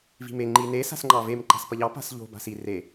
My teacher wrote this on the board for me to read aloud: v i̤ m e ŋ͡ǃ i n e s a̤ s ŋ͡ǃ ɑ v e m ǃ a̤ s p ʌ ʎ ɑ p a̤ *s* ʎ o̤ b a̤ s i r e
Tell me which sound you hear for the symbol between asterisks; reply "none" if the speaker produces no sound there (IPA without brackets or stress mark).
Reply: s